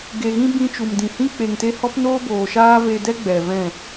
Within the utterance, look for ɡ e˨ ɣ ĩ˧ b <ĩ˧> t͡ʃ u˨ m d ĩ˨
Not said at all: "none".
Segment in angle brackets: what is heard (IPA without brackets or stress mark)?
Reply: ĩ˧